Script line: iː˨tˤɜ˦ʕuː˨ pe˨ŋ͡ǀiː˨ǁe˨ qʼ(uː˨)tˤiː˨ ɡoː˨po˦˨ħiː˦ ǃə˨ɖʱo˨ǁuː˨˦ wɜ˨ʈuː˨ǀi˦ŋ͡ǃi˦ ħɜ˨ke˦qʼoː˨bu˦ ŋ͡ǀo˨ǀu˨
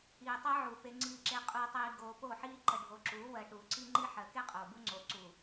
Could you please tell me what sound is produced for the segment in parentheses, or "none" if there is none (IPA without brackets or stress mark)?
uː˨